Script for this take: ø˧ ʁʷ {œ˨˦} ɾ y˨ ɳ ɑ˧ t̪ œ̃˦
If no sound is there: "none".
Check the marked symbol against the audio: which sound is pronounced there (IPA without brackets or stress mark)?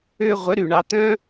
œ˨˦